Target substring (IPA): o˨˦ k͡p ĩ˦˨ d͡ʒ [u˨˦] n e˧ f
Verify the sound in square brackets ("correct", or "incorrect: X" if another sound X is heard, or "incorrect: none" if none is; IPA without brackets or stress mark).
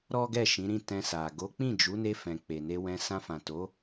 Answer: correct